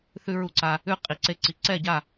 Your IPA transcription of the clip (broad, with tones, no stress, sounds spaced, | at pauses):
θ ʉ˧ ɹ u˧ ǀ a˧ | ʉ˥˧ qʼ i˧˩ ǀ e˥˧ ǀ i˧ ǀ ɛ˥˧ ɟ a˥˧